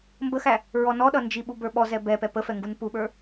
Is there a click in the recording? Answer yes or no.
no